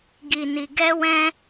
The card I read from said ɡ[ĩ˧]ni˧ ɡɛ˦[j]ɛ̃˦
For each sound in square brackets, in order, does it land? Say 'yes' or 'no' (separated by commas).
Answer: no, no